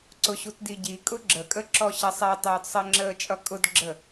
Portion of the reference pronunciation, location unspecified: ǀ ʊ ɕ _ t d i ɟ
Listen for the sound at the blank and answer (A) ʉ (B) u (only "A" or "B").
B